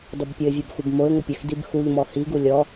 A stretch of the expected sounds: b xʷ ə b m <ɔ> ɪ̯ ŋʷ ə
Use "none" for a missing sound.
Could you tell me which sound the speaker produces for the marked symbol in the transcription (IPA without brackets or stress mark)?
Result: o